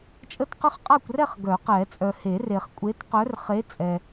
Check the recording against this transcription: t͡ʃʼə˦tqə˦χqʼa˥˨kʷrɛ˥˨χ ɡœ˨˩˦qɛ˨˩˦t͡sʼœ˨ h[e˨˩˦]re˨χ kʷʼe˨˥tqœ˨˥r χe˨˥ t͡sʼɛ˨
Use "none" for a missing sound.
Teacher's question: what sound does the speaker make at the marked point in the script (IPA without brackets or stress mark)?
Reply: e˨˩˦